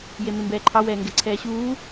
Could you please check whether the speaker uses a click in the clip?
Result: yes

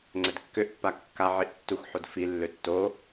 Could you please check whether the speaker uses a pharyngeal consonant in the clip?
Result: yes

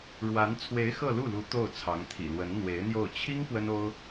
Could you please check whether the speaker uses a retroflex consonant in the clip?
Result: yes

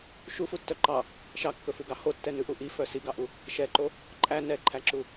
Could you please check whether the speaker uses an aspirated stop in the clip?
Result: yes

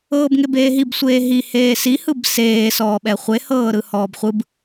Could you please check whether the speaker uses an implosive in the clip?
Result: yes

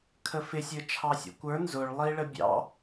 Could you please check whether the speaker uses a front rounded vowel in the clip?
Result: no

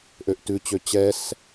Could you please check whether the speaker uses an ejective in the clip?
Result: no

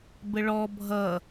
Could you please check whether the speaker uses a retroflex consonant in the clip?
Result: yes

